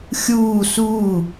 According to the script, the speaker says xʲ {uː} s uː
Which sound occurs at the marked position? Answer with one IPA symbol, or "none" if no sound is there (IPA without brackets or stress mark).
uː